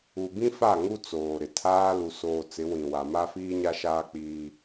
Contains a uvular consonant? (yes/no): no